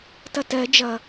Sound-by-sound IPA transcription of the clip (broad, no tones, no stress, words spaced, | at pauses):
tʌtɜ d͡ʒʌ